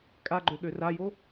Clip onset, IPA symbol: kʼ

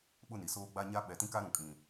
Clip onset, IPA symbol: ɓ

